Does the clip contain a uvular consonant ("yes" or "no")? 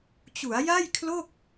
no